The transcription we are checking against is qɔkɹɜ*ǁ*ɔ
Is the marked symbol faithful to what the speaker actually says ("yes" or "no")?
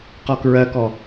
no